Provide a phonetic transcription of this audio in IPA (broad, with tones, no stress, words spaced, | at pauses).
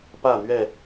pä˥˨n̪ɥɛ˥˨